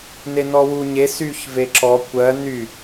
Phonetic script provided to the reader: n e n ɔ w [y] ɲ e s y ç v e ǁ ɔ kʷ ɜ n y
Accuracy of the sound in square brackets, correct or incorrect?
incorrect